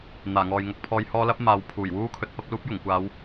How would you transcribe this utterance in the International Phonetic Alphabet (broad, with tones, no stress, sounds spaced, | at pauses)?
n̪ aː˨˩ ŋ ɔː˨ j ŋ ɐ˨˥ k̚ pʰ ɔː˧ j h ɔː˥ l ɐ˥ p̚ m aː˨˧ w pʰ uː˨˩ j w uː˥ kʰ ɵ˨˥ t̚ p ɐ˨˥ p̚ l uː˥ p̚ j ʊ˨˩ ŋ kʷ aː˨˧ w